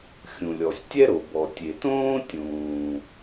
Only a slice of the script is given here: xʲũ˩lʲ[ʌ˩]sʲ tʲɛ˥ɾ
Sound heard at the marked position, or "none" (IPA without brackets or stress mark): ɔ˩